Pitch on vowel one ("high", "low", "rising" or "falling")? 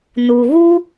low